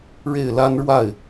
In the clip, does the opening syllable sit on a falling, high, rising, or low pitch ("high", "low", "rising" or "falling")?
falling